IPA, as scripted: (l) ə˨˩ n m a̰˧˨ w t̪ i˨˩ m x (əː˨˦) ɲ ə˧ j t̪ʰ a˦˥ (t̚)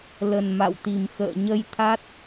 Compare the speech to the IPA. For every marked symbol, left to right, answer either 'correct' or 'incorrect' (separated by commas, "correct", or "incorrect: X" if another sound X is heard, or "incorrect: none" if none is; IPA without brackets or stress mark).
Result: correct, incorrect: ə̰ː˧˨, correct